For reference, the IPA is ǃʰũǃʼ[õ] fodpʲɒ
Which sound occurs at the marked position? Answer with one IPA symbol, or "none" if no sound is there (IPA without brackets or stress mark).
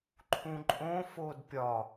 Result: õ